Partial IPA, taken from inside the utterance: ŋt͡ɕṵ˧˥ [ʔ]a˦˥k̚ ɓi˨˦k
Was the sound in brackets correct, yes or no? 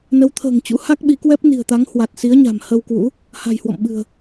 no